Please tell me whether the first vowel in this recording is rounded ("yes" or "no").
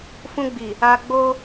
yes